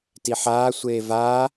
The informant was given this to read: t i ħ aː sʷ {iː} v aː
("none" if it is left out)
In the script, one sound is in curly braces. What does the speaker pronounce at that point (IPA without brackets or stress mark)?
eː